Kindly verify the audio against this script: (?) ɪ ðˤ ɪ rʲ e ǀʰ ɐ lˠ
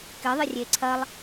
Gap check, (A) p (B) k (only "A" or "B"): B